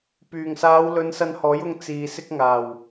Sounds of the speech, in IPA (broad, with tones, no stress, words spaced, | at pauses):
pyː˨˩ŋsaː˨˧w lɵ˨˧nsɐ˧nhɔː˨˥jʊ˧ŋ t͡siː˨ sɪ˧k̚ŋaː˨˩w